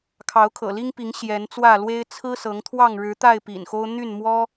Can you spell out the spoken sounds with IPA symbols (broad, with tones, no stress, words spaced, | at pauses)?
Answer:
kʰɑ˨˦ʊ̯kʰɤ̰˨˩li˦ŋpi˨˦ŋ ɕjɛ˨˦nt͡swä˥˨ lwe˦ɪ̯ t͡sʰɹ̩˦sɤ˨˦ŋt̪ʰwɑ˥˨ŋ ɻɻ̩˨˦t̪a˥˨ɪ̯ pḭ˨˩nxo˦ʊ̯ n̪y˥˨nmwɔ˦